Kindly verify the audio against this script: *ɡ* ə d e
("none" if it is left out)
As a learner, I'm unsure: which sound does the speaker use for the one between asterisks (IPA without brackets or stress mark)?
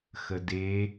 x